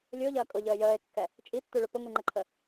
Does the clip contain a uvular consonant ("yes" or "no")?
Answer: no